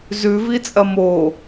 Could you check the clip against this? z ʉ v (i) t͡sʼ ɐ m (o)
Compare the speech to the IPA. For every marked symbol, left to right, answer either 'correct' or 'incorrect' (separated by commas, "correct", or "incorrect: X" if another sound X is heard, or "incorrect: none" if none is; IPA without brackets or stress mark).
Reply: correct, correct